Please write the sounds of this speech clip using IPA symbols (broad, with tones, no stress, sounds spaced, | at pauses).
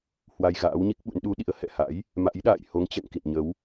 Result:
h w a˧ j ɣ a̰ː˧˥ w ɲ i˦˥ k̚ ɓ ṵ˧˥ n ɗ u˨˦ ɗ ḭ˧˥ ə̯ h ɛ̰˧˨ h a̰˧˥ j | m a̰˧˥ j ɗ a̰ː˧˨ j h o˨˦ ŋ t͡ɕ ɛ̰˧˨ ŋ k ḭ˧˨ n ɲ ə˨˦ w